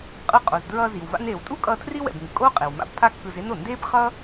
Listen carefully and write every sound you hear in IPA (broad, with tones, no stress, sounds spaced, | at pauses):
qʼ ɯ˧ qʼ o˩ z d ɹ ʌː˧ z i˩ w v a̰˧ n eː˩ w tʼ u˥ kʼ ʌː˧ tʰ r i˥ w ɛ̰˩ b ŋ ɯ˩ kʼ oː˥ qʼ e˩ w m a̰˧ b pʰ a˥ kː ɯ˧ z e˥ n o˩ n d eː˥ b χ ʌː˥